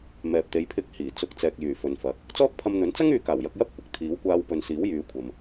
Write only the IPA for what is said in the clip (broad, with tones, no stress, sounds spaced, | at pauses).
m ɛː˨ p̚ t̪ e˨˧ j pʰ ɪ˧ k̚ h iː˨˩ t͡s ʊ˨˥ k̚ t͡s ɛː˨ k̚ j yː˨˩ f ɵ˨ n f ɐ˨˥ k̚ | t͡s ɔː˥ k̚ pʰ ɐ˧ m n̪ ɵ˨˥ n t͡s ɐ˥ ŋ yː˨˧ k aː˨˩ w j ɐ˧ k̚ j ɐ˥ p̚ kʷ ɪ˨ k̚ t̪ʰ iː˨˥ w kʷ aː˧ w p ɵ˨ n s iː˨˥ w j yː˨˧ kʷʰ ɐ˨ m